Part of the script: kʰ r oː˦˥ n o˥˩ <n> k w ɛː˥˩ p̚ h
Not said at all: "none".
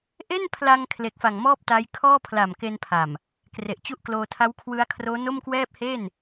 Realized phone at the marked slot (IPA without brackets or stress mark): m